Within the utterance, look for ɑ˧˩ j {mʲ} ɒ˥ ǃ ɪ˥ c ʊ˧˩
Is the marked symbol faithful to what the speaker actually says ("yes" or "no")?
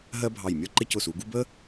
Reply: yes